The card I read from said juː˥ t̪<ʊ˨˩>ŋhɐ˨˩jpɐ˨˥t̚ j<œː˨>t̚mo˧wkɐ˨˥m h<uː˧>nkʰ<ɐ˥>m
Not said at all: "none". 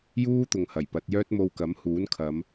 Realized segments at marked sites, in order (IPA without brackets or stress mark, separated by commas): ʊ˧, œː˥, uː˨˥, ɐ˨˧